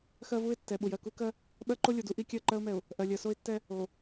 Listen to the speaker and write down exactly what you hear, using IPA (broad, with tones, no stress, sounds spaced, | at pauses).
x ɜ˦ v u˦ ɪ̯ tː ɛ˨ ɓ u˨ j ɜ˨ k u˦ k ɜ˦ | ɓ ɜ˦ ǃ o˦ lʲ o˨ d u˦ ʔ i˦ kʲ ɜ˦˨ ǃ ɜ˦ ʊ̯ m ɛ˨ ʊ̯ | ʔ ɜ˨ lʲ ɜ˨ s o˦ ɪ̯ tː ɛ˦ | o˨